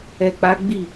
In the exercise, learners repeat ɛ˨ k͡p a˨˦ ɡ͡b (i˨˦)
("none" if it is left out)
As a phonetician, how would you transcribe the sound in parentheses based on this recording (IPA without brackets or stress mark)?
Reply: i˦˨